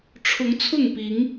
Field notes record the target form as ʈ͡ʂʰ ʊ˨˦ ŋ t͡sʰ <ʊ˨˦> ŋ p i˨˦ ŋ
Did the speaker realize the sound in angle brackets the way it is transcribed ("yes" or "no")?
no